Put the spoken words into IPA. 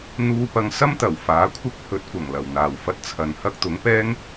n̪ uː˧ p ɐ˧ ŋ s ɐ˥ m t̪ ɐ˨˩ w f aː˨˥ kʷʰ ɪ˥ k̚ h ɵ˨˥ t̚ kʷ ɐ˨˩ ŋ l ɐ˨˩ w n̪ aː˨˩ w f ɐ˧ t̚ t͡sʰ ɐ˨ n h ɐ˥ k̚ t̪ ʊ˨˥ ŋ p ɛː˥ ŋ

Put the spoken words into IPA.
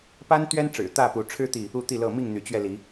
p a˦ n t̪ ɥ ɛ˦ n ʈ͡ʂ ɻ̩˨˩ t̪ ä˥˨ p u˨˦ ʈ͡ʂʰ ɻ̩˦ t̪ i˨ | u˥˨ t̪ i˥˨ l ɤ˥˨ m i˥˨ ŋ n̪ y˨˦ t͡ɕ ɥ ɛ˧ l i˨˦

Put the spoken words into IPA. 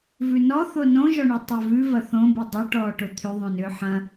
v ʉ n ɔ θ o n õ ʒ ɔ ɳ u tˤ ʏː v ʉ v ɐ θ õ b i dˤ ʏ ʈ ɔː ʈ o t̪ʰ ʏ ðˤ õ n ʏː ħ ɐ̃

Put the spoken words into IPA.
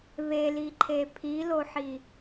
β e l i ǃʰ e pʰ i l o ħ i

